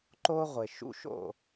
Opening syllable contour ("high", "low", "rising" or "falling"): high